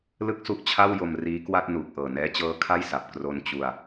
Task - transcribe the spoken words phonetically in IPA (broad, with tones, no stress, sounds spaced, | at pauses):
l ɯ˥˩ k̚ s u˦˥ ʔ t͡ɕʰ a˥˩ w j o˧ m r iː˦˥ k w a˥˩ t̚ n uː˨˩ k̚ ʔ ɤː˨˩ n ɛː˦˥ t͡ɕ ɤː˦˥ kʰ a˥˩ j s a˨˩ p̚ k r o˧ n t͡ɕ u˧ a̯